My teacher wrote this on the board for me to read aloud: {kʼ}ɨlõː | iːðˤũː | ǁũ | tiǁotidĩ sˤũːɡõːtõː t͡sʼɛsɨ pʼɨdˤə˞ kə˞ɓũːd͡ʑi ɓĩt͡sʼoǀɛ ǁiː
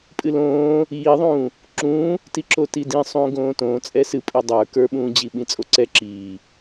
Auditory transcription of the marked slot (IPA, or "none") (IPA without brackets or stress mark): pʼ